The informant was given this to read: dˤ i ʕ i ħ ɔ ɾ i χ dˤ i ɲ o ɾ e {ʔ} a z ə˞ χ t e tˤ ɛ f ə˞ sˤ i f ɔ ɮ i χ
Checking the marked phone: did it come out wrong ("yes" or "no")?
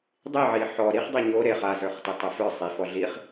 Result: yes